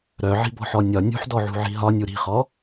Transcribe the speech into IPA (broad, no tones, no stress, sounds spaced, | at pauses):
ɾ œ ʕ i̤ b ɔ̤ ħ ɔ nʲ ɒ nʲ ṳ ħ d ɔ ʕ ṳ ʕ i̤ ɦ ɒ nʲ u ɾ i̤ χ ɔ